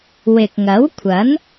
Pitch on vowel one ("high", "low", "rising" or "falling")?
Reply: low